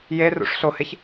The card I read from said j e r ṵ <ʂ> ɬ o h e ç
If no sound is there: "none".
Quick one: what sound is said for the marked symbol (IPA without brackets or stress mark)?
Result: ʂ